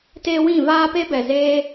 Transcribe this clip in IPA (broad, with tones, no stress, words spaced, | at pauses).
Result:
te˦wĩ˦˨ vaː˦pe˦ bɛ˨zeː˧